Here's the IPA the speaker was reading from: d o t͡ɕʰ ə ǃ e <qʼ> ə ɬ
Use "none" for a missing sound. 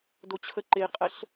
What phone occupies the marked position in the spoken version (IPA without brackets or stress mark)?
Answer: qʼ